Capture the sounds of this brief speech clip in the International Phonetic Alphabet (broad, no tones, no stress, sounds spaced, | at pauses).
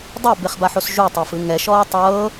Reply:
dˤ ɛ b e χ b a ħ o s ʒ u tˤ a f ɯ ŋ ɛ ʃ ɔː tˤ ɤː